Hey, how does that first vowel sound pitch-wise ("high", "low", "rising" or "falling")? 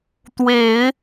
low